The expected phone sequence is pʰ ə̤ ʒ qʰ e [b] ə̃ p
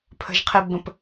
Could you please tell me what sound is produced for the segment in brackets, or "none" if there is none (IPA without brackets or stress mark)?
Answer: b